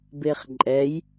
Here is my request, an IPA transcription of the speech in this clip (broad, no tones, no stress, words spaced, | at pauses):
beχǃʼɛj